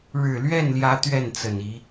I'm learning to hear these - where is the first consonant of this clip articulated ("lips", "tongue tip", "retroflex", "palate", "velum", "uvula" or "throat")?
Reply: retroflex